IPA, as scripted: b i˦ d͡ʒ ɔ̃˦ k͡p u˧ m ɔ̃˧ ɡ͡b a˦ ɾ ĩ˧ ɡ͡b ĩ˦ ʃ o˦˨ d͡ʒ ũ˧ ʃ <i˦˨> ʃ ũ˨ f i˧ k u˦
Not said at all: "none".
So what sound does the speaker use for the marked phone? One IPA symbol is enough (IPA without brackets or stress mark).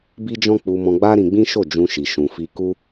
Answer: i˨